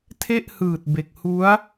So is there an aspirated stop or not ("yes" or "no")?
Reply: yes